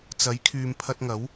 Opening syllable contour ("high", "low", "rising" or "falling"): rising